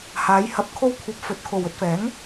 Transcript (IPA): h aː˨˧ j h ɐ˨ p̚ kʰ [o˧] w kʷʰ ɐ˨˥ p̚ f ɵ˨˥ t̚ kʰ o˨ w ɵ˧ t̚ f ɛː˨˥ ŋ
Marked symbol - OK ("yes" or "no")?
yes